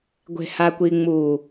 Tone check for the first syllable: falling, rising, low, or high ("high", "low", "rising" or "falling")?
low